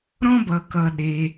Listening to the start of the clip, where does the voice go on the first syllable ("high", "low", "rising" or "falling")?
high